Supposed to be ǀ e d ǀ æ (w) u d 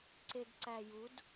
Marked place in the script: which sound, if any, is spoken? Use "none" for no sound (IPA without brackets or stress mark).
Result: j